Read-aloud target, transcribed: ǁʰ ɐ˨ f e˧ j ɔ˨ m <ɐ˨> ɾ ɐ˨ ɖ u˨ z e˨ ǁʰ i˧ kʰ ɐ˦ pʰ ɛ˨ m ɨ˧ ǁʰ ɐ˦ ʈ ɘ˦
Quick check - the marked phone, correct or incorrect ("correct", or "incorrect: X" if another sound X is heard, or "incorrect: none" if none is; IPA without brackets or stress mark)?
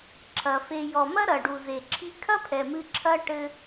incorrect: ɐ˦